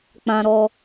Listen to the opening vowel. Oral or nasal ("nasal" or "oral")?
nasal